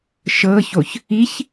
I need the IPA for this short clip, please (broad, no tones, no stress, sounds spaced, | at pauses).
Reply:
ʃ ɤ ç o ç | i ç